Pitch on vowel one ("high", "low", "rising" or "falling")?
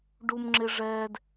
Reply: low